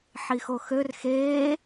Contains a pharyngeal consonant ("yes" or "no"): yes